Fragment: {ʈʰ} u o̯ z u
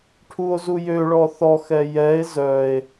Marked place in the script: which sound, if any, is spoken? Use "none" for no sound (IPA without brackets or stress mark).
ʈʰ